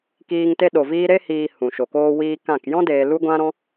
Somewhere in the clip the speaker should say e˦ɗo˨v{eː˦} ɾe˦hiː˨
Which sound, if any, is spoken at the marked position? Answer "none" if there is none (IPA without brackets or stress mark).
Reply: iː˦